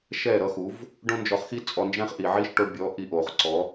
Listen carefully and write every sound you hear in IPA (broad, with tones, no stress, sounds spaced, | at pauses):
ʃ ɛ˦˨ ɾ ʌ˧ x u˨˦ v | ɖ õ˦ n d͡ʒ ɔ˧ χ x i˦ t͡sʼ ɔ˧ n d͡ʒ ɛ̃˦ χ ʔ i˨ ʕ i˦ ʃ ʈ o˧ ɖ bʲ ɔ˨˦ ʔ i˧ ʔ o˨ χ ǀ ɔ˨˦